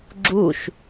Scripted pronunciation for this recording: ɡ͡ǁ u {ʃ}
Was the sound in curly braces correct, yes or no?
yes